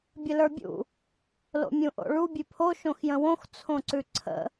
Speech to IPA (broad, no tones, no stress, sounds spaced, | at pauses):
bʲ ə l ə˞ bʲ ṵ | l o̰ mʲ ũ ʔ o̰ ɭ u bʲ ʉ pʰ o ʃ õ x j ə̃ w õ x t͡sʰ õ ǀ ʉ ǀʰ ə̰